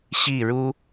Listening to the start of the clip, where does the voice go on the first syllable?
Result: falling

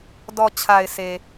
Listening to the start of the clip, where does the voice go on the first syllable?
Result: low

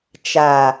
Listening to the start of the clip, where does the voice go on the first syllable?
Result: low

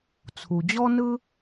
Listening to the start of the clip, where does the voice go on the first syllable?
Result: low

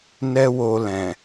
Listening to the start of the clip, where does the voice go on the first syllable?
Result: high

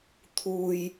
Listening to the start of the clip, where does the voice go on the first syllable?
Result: low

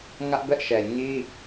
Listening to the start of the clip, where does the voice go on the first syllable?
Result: high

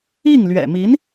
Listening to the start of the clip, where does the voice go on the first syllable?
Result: falling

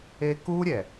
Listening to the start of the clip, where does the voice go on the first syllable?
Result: high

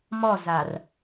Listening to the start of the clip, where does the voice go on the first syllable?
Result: falling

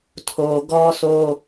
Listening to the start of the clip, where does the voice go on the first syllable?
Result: low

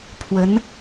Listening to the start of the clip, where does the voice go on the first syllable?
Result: rising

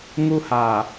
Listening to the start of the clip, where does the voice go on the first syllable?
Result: high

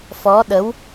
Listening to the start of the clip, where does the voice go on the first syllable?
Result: rising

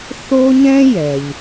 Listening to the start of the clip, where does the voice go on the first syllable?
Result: high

